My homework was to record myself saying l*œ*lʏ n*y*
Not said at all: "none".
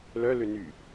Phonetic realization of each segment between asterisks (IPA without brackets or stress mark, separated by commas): œ, y